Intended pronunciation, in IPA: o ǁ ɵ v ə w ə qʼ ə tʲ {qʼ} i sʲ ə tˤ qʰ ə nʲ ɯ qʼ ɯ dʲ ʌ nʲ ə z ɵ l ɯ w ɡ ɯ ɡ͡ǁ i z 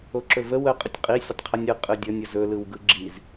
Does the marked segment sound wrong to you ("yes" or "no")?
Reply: no